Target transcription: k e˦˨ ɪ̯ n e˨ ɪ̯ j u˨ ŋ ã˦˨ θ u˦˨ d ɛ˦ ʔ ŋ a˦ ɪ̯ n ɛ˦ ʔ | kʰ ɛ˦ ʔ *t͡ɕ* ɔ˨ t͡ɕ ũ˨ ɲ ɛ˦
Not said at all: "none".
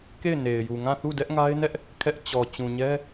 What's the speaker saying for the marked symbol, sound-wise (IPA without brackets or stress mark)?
t͡ɕ